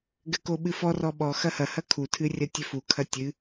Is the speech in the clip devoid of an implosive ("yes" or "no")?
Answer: no